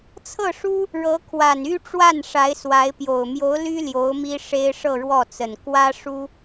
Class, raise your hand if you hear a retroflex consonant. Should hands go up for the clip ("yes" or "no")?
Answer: yes